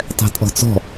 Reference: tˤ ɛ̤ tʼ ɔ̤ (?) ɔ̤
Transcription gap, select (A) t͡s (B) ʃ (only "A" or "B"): A